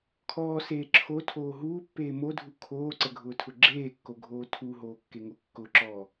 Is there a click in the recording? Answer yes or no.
yes